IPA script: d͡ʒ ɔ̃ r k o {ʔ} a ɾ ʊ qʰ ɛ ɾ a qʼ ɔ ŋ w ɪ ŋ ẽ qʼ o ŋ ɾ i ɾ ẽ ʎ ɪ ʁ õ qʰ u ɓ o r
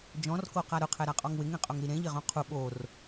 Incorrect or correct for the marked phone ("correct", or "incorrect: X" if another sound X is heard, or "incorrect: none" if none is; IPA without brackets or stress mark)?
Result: incorrect: q